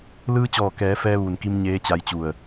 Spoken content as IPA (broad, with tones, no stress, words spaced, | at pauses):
lɯː˧t͡ɕɔː˧˩kɛː˩˧ fɛː˧ ʋuː˩nki˧m ɲeː˧˥t͡ɕa˧jt͡ɕu˧˩ə̯